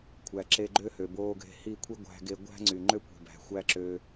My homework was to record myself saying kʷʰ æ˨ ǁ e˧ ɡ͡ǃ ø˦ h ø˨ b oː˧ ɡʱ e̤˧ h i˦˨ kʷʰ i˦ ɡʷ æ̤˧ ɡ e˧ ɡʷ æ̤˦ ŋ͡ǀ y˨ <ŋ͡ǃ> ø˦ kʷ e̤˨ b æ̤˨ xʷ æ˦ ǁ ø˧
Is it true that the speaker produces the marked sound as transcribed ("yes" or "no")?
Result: yes